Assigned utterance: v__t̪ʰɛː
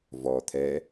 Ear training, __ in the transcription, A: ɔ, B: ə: A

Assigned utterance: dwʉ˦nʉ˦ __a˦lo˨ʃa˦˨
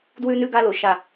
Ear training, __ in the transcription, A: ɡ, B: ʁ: A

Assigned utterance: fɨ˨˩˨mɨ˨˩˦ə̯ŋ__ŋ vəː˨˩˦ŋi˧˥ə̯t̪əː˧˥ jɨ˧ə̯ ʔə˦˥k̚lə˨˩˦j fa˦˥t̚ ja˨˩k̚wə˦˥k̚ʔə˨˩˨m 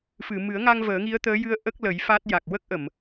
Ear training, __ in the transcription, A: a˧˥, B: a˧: B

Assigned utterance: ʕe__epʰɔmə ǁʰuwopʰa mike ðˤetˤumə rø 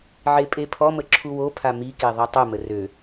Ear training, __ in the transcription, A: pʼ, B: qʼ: A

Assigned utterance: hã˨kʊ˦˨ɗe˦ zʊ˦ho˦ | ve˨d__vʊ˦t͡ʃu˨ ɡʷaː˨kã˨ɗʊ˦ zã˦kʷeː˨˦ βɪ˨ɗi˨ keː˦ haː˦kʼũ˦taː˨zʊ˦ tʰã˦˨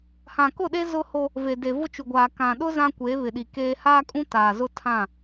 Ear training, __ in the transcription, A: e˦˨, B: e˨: B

